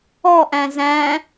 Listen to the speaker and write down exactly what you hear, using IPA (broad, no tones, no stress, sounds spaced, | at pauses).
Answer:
ɔ ʔ æ̃ z æ̃